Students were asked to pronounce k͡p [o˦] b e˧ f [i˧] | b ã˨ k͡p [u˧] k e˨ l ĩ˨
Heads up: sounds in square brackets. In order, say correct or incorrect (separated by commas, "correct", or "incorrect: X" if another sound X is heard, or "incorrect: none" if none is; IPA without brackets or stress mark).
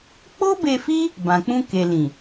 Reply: correct, incorrect: i˦, incorrect: ũ˧